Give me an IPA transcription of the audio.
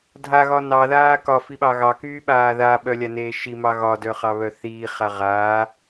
dʱaɣɒ nɑðaː kɒfiɓɑ ɣɑkyːɓaː ðaɓœlʲaneː ʃimɑ ɣɒdœχɑβœ θiːχa ʁaː

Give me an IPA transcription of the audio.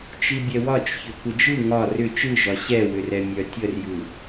t͡ʃibʲɛwɒt͡ʃçʏ kʷəd͡ʒɯ ŋɒ rʏ t͡ʃɯʒɒ ɕɛwʏrɛ mʲœtʲərjɯ

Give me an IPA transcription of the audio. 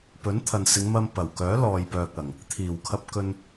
pɵ˨˥nt̪ʰɐ˨n sɪ˨˧ŋmɐ˧m pɐ˨˩wkœː˨˥ lɔː˨jpœː˨k̚ɐ˨˩ŋ | t̪ʰiː˨˩wkʰɐ˧p̚ kɵ˧n

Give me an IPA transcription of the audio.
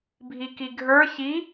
bʱikiɡʱə˞ çi

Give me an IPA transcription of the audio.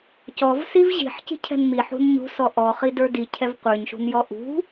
cɔvsiv ʑi̤ħci̤cʰɛ̤n miħṳn ɲṳsɔ ʔɔχidə˞ dicʰɛv qʷə˞ɲʃṳnjɔ ʔṳ

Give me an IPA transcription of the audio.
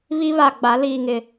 βi˦βa˨ɡ͡ba˨˦ liː˨ŋɪ˨

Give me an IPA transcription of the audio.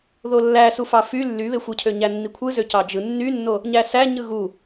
ðolːæsufɑ fy lːyβexʷɯcʰø ɲænːikʷʰɯzø cɑd͡ʒɯ nːynːo | ɲæsæ ɲɯɣu

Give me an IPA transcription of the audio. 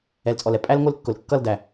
ɛ˨lt͡sʼɔ˨lɛ˦ pʼæ˦lŋʷɪ˦lkːʊ˨l kːʌ˦˨ldæ˨

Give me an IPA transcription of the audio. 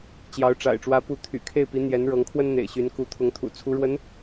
t͡ɕjɑ˧˥ʊ̯ʈ͡ʂa̰˨˩ɪ̯ ʈ͡ʂwä˧˥pu˧˥ t̪ʰy̰˨˩kʰe˥˩ɪ̯pi˧˥ n̪jɛ˧˥nɻɤ˧˥ŋkʰwə˥n n̪ḛ˨˩ɪ̯ɕy˧˥nku˧˥ t̪ʰʊ˧˥ŋt̪ʰṵ˨˩ t͡sʰu˧˥ɻwə˧˥n

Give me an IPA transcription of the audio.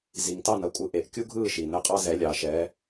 zi˩ŋtɑ˥˩nɐ˩˥kʷʼɯ˩˥ ʔe˩ʔkʲu˥ɡʱɯː˥˩ʃi˩ nə˧qʼɑ˥zɛ˩˥ lʲɑ˩ʃɛː˩˥

